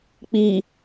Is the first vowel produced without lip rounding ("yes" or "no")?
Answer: yes